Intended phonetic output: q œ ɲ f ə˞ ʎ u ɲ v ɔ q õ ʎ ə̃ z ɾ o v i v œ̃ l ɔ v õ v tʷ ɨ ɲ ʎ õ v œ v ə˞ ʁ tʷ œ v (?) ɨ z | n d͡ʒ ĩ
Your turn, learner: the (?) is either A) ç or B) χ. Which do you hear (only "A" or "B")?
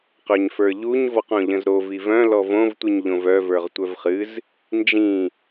B